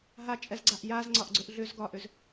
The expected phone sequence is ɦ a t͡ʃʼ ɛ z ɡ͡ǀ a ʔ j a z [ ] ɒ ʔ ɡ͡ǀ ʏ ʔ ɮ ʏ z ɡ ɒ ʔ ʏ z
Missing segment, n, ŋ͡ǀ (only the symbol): ŋ͡ǀ